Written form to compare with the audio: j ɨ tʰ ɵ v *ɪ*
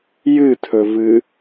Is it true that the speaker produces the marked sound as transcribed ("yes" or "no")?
no